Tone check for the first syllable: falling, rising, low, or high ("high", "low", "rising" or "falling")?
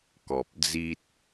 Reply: low